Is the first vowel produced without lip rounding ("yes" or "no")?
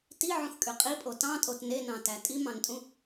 yes